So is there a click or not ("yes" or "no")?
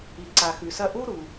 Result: yes